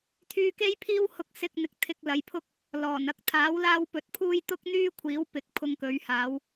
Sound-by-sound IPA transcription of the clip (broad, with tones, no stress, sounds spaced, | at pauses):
t̪ʰ yː˧ k e˥ j pʰ iː˥ w h ʊ˧ k̚ s ɪ˧ k̚ n̪ ɪ˨ k̚ t̪ʰ ɪ˧ k̚ l ɐ˨˧ j pʰ ʊ˥ k̚ | l ɔː˨˩ n ɐ˧ k̚ t̪ʰ aː˨˥ w l aː˥ w p ɵ˧ t̚ pʰ uː˥ j t̪ ʊ˥ k̚ n̪ yː˥ kʷʰ iː˨˥ w p ɪ˨˥ k̚ pʰ ʊ˧ ŋ k ɵ˨˧ ɥ h aː˨˧ w